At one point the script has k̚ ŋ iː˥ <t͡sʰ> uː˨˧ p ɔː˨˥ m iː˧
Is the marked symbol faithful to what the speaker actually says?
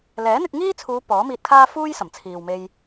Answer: yes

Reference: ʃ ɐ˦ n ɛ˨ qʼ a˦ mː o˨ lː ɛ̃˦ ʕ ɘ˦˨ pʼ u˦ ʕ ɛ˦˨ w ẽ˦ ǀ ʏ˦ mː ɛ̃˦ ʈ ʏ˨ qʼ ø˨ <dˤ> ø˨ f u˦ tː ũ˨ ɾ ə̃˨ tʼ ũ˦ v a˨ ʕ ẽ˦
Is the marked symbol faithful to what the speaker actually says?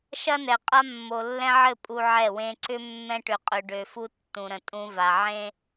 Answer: no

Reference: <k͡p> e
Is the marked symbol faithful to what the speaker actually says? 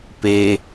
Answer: no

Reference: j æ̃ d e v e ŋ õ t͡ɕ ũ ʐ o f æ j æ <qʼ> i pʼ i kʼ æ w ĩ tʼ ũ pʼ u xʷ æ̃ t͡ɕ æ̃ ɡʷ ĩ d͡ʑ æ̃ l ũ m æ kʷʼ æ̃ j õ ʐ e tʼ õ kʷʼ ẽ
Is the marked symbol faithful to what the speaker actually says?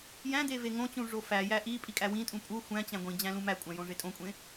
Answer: no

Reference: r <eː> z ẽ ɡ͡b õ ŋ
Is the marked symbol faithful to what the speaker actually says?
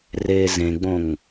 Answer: yes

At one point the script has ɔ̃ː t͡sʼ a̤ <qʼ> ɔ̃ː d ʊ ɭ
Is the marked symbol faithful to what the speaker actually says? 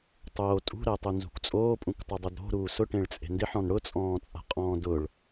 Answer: yes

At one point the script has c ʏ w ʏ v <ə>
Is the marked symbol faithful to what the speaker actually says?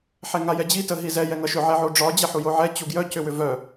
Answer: no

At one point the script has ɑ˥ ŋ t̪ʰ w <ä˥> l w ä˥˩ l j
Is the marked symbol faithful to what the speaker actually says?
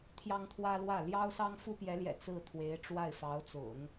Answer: yes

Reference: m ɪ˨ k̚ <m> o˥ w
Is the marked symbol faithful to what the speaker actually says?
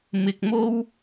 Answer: yes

